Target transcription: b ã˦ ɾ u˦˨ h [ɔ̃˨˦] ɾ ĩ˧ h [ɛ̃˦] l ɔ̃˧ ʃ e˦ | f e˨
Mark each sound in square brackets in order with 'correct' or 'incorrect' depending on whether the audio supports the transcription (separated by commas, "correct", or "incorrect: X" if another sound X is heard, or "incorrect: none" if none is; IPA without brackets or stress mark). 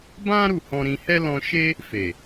incorrect: ɔ̃˧, incorrect: ɛ˦